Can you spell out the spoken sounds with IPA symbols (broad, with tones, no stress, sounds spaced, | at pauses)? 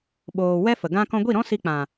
ɓ oː˨ w ɛ˦ f ə˨ ɡ ã˧ k ɔ̃˧ ɡʷ i˦˨ ɾ ɔ̃˦ s i˧ k͡p ã˨